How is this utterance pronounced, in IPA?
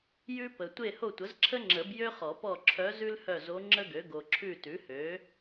j ʉ˥ p ə˨ tʷ e˦˨ h o˦˨ tʷ ə˩˥ z ǁʰ ə˥ ŋ͡ǁ ə˨˩˦ b j ø˥ χ ɔ˨˩˦ p ɔ˦˨ ǁʰ œ˧˥ z ʉ˥ l h œ˦˨ z o˧˥ ŋ͡ǁ ə˥ ɡ ø˩˥ ɡ o˨ ǁʰ ʉ˦˨ t ʉ˩˥ h ø˩˥

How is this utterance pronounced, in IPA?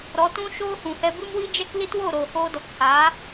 ɾ ɔ˨˦ t ũ˦ ʃ oː˦ h ũ˨ h ɛ˧ b ɨ˦ m w i˦ d͡ʒ ɛ˦ k l i˦ t w o˦˨ ɾ oː˨ h oː˧ d ɔ˨ k h aː˨˦

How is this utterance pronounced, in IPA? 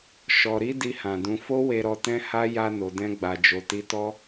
ʃ ɔ˨ ɾ i˨˦ d i˧ h ã˨ d ũ˧ f o˦ w e˧ ɾ ɔ˧ t ɛ̃˦ h a˦ j a˧ n o˨ d ɛ̃˧ ɡ͡b a˨ d͡ʒ o˨ t i˧ t ɔ˦

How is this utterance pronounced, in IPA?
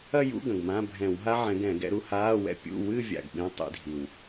ɐ˥˧ j ṵ˧˥˧ ɡ ɐ̃˨˩ ɡ m ã˧˥˧ bʱ ɛ̃˧˩˧ w ɦ a˥ ʕ ɛ̃˨˦ ɡ ɛ̃˧˩˧ ɡ ɛ̰˨˦ ɾ u˨˦ h aː˧˥˧ w ɛ̰˥˧ pʲ ṵ˧˥˧ w ɨ˥˧ vʲ a̰˨˩ ɡ ɓ ĩ˧˥˧ tˤ ḭ˨˦ dʱ i˨˩ w

